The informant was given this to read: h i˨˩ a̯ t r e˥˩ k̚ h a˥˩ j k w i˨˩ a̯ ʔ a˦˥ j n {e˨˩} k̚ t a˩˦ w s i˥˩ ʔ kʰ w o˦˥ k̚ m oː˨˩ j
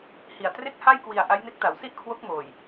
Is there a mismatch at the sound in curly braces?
yes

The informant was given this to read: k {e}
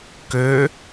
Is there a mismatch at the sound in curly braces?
yes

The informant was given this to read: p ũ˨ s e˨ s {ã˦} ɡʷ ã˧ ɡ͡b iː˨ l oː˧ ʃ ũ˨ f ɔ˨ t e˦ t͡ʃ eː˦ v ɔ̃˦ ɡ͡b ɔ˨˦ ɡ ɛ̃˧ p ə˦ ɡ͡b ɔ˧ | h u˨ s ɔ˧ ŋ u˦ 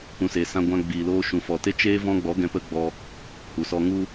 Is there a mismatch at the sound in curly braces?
yes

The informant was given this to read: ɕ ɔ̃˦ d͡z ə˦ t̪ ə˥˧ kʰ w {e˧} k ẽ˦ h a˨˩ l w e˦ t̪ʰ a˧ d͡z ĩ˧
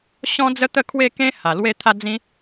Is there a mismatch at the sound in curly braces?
yes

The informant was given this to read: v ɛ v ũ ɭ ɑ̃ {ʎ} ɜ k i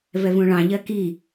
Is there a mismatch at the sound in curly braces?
no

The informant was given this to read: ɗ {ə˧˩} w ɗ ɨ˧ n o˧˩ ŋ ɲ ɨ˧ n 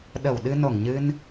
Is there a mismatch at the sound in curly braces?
no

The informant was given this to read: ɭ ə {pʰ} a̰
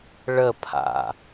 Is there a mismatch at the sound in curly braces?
no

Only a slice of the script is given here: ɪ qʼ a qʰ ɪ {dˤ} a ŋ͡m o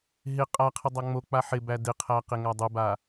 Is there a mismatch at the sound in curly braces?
no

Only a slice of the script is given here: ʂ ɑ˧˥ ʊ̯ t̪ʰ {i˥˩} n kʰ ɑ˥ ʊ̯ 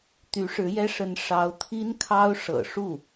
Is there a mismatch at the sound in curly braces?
yes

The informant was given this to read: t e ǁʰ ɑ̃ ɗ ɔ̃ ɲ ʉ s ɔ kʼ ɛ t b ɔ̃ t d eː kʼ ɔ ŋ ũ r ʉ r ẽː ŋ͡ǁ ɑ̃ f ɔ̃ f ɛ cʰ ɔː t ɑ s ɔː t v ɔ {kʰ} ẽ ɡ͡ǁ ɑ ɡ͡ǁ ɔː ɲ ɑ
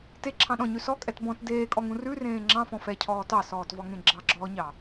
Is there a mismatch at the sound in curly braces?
yes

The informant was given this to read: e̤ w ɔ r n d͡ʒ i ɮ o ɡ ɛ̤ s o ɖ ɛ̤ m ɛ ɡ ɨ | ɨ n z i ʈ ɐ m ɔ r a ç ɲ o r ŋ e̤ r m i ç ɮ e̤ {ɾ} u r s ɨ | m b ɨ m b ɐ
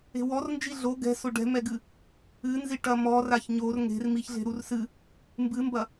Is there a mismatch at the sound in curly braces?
no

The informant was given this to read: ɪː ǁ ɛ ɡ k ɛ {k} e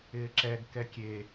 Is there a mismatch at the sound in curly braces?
yes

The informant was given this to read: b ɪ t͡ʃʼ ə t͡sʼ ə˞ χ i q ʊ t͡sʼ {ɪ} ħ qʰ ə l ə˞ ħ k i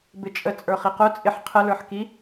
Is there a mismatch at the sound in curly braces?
no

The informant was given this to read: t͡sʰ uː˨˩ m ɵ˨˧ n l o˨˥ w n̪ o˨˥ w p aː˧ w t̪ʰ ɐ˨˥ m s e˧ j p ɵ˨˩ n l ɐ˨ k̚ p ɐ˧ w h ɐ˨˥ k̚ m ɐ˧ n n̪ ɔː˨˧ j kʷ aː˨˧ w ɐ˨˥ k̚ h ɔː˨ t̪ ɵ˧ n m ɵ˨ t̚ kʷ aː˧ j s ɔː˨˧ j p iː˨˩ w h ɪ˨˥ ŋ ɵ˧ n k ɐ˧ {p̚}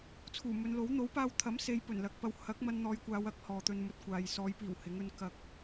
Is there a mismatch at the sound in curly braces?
yes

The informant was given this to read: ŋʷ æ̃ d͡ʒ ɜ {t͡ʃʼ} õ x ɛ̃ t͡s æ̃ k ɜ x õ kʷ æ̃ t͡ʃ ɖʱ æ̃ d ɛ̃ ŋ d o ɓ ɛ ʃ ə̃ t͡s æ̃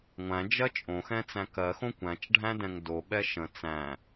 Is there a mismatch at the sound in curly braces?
no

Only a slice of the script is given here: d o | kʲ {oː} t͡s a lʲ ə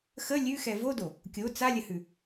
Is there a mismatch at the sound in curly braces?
yes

